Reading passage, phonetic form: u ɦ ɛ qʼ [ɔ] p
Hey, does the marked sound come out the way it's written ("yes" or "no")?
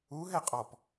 yes